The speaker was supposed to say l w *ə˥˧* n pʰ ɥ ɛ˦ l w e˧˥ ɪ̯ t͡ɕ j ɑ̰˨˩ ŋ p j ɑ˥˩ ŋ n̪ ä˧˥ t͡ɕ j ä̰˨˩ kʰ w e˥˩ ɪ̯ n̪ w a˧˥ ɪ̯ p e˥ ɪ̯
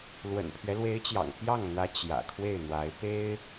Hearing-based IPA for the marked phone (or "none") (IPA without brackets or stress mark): ə̰˨˩